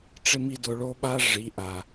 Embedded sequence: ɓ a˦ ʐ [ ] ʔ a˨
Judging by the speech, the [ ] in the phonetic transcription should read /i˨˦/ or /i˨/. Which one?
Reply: i˨˦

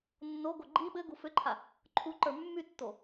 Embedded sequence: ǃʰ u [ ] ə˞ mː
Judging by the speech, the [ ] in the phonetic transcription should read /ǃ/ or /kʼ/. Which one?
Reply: ǃ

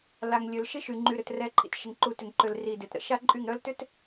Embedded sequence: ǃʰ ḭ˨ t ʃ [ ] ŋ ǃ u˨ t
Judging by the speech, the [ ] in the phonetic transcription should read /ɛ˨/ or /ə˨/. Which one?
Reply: ə˨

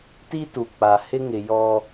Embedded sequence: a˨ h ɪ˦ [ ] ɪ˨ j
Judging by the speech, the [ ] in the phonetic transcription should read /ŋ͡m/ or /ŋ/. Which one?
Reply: ŋ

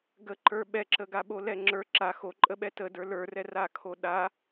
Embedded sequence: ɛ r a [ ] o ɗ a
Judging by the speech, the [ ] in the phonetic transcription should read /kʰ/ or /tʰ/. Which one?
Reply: kʰ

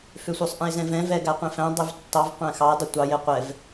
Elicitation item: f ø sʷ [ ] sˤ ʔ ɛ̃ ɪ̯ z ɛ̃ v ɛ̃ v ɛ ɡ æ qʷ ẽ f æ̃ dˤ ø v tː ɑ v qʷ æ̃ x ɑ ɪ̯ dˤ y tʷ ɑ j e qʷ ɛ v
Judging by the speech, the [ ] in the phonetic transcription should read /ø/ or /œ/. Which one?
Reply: œ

